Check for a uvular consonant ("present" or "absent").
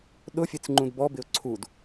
absent